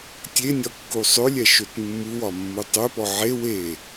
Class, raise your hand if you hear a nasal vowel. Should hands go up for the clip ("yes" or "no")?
no